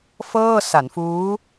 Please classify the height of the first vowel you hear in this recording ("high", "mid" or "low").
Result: mid